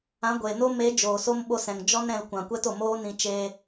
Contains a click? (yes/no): no